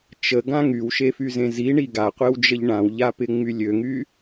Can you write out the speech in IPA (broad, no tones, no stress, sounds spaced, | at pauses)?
t͡ʃ ə ɡ ã ŋ y w ʃ e f y z ẽ z i ɳ i ɡ a qʷ e w d͡ʒ ə ʎ ɳ ã w ʎ a p ɪ ŋ͡m y lʲ ø ŋ y